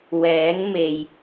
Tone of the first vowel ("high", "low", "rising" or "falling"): rising